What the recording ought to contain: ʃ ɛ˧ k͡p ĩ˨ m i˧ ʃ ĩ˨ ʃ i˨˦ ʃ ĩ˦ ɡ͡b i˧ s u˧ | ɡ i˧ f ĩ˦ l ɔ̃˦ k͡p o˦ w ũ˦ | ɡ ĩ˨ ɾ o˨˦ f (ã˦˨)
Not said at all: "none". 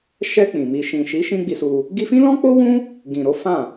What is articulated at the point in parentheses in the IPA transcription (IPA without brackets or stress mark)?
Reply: ã˦˨